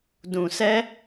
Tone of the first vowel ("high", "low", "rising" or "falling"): low